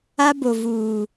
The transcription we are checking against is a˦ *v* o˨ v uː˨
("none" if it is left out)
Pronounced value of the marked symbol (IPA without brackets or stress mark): b